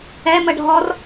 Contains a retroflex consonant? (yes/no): yes